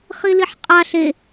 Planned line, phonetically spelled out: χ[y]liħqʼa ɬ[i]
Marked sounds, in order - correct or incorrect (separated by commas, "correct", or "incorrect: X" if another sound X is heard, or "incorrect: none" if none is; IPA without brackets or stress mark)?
incorrect: i, incorrect: e